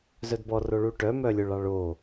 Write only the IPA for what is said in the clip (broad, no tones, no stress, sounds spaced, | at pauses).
z œ d b ɔ r o ɭ u ʈ œ m œ lʲ o ɭ ɑ ɭ o